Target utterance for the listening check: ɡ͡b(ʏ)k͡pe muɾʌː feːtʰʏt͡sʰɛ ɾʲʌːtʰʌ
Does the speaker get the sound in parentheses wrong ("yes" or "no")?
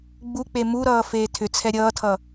yes